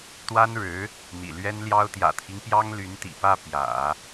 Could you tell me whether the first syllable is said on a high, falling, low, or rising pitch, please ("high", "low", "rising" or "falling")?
high